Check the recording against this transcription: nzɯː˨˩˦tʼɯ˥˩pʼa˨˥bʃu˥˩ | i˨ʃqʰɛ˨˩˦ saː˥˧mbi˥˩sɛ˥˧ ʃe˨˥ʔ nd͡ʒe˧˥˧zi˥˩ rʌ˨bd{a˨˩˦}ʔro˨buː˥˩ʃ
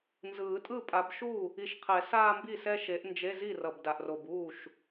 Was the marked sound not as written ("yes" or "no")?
yes